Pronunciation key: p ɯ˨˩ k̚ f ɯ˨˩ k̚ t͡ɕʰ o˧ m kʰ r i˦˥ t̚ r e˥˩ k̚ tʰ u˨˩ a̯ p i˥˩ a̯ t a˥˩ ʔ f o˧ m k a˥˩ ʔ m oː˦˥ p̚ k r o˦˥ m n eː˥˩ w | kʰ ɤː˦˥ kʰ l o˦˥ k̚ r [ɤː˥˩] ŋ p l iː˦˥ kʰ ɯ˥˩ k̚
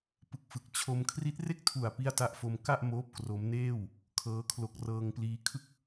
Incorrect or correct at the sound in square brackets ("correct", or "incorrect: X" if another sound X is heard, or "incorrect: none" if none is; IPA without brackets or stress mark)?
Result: incorrect: ɤː˧